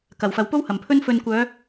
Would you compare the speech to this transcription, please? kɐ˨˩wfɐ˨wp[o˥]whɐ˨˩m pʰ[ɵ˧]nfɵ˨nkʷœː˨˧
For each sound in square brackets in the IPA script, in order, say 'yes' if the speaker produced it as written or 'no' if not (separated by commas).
yes, yes